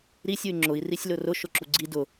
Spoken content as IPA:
ɾisʲ uy̯ŋ͡ǁʊi̯ risʲlʊrʊ ʃʊǁuɡ͡ǀi dʊ

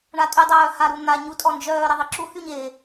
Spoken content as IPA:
ɳatʼy dˤœːhaɾu n̪a ɲutʼɔnd͡ʒœː ɾeðˤiǁu hyɲe

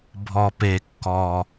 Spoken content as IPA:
bʱɔ˨˩pe˨˩kːɔ˨˩

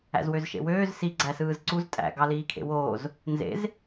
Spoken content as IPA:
æ̰zwøzʃḛwøːz si ɡ͡ǀæsɯːzǀuz tʼæ̰ ɡɑliːkʰḛwoːz | nzḛz

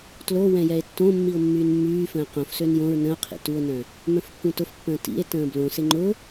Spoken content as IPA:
tlowɛ̃ jɛe̯tːõmːio̯ mːyːnmːyːfə̃ː qõfsøn jõɹ nə̃o̯qʰḭ tuo̯nœ̃ | mœ̃fkːũtʊfpːə̃ː tḭe̯ tə̃ːblõsɪ ŋ͡ǃʊ

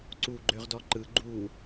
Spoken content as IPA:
ǀu ɡ͡ǃøʁdɔǃɯ ɡ͡ǃu

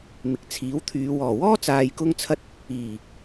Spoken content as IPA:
mɪ˨k̚t͡sʰiː˨˥wt̪ʰyː˨˧ wɔː˨˩ wɔː˥t͡saː˨jkʊ˧ŋt͡sʰɐ˧t̚ | iː˨˩

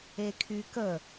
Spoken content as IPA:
ekʰykə

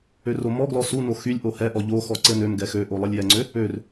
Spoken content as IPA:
øromɔɡlɔ suno xylʲʔo hɛʔɔ ʎoxɔ ǀɘnømɡɛ xøʔo lˠɘlʲjɛŋ͡ǀø | ør

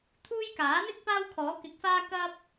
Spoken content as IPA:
t̪ʰuː˥j kaː˨˥n̪ɪ˥k̚ paː˥wkʰɔː˨˥kɪ˨˥k̚faː˥ kɐ˥p̚

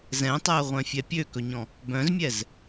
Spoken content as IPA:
zɛ̃tˤæə̯ʁʷœ̃fʲɛ pʲøkɵɲɔ̃ | bœ̃zmʲɛz

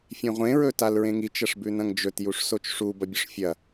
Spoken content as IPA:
fʲẽʁʷẽ ɹɵtalɹẽŋit͡ʃ ɐʂbʉnɐ̃ŋd͡ʒɵt juʂsot͡ʃʂu bɐbʲɵʂfʲɐ

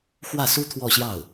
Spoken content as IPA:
xwä˥˩su˥ t̪ʰwɔ˥˧ɕjɑ˥˩ʊ̯

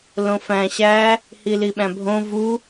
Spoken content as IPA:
lõfæ̃ ɕæ | hiliɓæ̃bʱõ vu

